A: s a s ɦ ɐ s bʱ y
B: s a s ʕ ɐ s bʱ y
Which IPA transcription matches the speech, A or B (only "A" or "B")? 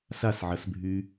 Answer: B